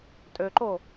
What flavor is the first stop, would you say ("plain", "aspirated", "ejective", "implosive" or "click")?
ejective